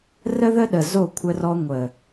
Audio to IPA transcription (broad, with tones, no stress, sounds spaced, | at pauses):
r ə˦ ð ə˦ ɗ ə˨ z o˦˨ kʷʰ ə˧ r ɔ˧ ŋʷ ə˨